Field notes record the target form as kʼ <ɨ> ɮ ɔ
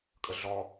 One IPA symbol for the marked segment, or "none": ə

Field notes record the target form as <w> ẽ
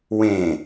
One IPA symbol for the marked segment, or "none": w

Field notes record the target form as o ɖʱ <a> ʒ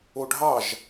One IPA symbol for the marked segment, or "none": ɑ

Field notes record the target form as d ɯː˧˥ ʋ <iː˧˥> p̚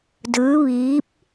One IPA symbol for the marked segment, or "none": iː˧˥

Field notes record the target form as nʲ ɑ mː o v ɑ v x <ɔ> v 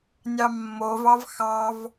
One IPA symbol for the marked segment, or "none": ɑ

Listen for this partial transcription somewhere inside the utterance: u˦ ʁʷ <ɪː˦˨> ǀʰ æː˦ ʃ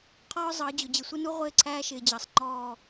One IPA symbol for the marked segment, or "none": ɪː˦˨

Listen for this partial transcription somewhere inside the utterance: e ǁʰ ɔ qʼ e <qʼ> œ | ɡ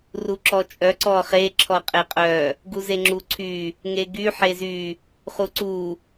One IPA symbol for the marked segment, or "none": qʼ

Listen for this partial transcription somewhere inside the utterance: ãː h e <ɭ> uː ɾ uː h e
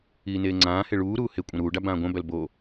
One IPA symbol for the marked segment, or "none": ɭ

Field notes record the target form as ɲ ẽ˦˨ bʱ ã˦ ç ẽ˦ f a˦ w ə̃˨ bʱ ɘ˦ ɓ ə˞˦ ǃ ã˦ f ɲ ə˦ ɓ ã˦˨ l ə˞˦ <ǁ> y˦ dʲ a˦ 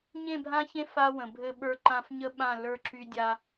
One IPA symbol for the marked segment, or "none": ǁ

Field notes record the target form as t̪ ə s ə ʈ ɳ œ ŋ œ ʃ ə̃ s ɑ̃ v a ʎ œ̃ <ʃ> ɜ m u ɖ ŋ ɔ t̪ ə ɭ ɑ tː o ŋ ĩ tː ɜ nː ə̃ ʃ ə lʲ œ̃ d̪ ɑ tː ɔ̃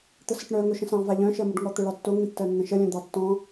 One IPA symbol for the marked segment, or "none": ʃ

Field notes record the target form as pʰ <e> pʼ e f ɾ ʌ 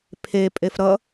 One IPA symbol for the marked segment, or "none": e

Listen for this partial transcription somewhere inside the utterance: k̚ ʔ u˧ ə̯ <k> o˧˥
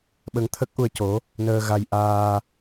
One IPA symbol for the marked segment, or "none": c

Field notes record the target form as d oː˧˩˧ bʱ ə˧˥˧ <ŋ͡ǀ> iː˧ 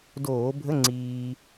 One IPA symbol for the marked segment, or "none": ŋ͡ǀ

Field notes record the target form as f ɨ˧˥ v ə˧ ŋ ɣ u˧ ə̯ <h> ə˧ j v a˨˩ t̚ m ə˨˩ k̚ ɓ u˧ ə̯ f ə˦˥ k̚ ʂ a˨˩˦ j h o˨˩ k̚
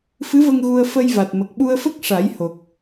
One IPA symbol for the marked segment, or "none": f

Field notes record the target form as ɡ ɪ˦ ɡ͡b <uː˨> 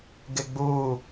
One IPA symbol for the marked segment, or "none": uː˦˨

